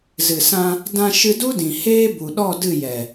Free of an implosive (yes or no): no